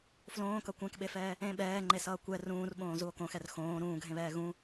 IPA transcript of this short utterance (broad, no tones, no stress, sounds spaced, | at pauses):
f l õː k ʌ kʷ ɛ̃ k ɓ e f ɛː | ẽ ɓ ɛː ŋ͡ǃ e s ʌː kʷ ɛ r ũː r ɓ õː z u o̯ k õ x ɛ r x õː ɾ ũː ɡʱ ẽ β ɛː ɣ ũ